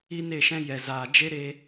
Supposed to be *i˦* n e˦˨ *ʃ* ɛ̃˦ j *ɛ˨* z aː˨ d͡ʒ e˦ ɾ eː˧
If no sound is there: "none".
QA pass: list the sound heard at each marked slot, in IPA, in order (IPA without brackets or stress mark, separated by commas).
i˦, ʃ, ɛ˨